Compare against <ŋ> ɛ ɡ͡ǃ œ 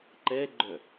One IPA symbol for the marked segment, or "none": ǃ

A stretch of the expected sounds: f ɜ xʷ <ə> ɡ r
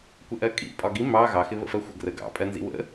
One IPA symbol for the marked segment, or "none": ə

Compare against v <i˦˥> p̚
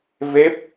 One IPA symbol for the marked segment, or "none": e˦˥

